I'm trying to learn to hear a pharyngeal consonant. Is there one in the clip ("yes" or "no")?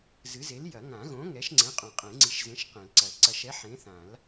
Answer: yes